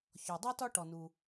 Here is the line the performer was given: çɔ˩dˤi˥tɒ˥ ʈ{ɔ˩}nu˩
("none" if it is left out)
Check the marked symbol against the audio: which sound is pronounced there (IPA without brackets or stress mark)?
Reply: ɔ˩